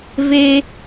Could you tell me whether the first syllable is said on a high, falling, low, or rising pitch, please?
high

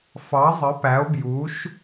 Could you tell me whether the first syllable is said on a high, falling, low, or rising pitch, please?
rising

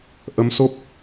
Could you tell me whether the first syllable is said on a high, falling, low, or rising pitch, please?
rising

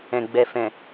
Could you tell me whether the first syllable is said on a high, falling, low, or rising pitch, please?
low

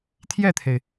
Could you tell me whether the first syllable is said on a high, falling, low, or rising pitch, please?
falling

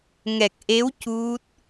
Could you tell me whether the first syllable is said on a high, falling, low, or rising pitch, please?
low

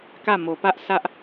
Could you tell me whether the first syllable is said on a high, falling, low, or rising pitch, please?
falling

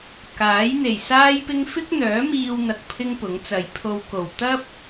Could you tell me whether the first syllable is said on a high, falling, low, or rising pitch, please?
rising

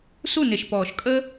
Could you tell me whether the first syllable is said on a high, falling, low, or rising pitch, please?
falling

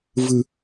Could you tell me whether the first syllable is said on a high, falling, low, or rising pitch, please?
low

